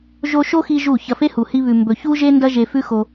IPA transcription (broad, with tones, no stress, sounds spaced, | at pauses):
ʒ o˧ ʃ o˦ x i˧ ʒ u˦˨ ç ɐ˧ f e˦ h u˨ h i˦ β ʉ˧ m b ɵ˧ ç u˦ ʒ e˦ n d ɐ˦ ʒ e˧ f ʉ˦ x o˧